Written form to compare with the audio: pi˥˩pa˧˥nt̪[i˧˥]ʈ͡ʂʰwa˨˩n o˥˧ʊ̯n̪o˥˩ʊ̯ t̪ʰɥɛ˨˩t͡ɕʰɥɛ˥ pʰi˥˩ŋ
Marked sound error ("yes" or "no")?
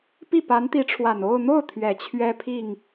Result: no